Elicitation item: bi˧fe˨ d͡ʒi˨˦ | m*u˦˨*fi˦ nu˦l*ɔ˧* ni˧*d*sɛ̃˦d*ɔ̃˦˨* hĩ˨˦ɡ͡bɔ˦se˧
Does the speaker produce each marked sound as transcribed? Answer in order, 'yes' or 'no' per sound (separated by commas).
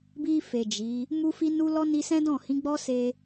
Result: no, no, no, yes